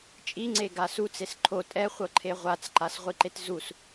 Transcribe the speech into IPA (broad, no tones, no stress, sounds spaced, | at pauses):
t͡ʃʼ i ŋ͡ǀ e ɡ a s u t͡s e s ǃʰ o tʼ ɛ χʷ ɤ ǃʰ e ʁʷ a t͡s ǃ a s ʁʷ i ǃ e t z u s